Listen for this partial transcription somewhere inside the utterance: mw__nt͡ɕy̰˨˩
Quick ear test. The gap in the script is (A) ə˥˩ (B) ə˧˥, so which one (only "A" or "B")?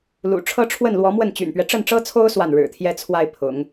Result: A